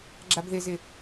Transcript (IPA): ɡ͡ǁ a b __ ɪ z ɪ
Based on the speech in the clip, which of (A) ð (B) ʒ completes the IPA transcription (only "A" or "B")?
A